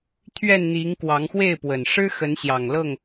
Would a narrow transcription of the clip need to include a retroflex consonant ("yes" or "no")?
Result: yes